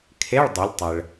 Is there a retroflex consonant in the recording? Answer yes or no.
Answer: yes